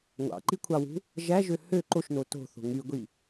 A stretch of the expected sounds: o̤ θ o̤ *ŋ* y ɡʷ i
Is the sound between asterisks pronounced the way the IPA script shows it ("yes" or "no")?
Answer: yes